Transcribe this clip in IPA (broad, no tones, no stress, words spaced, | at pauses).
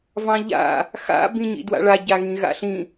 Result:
vɑ̃ʎa̰ | xa̰ bĩɲḭdwa̰ɭa ɟaɣĩɣa̰ɬĩ